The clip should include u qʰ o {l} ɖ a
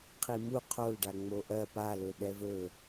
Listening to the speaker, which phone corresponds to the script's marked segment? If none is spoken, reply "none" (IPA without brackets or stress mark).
l